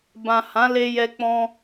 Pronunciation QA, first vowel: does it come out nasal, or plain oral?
nasal